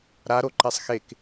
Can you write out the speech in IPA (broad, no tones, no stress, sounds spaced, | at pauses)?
ɾ a ɾ o ǃ e sˤ x e k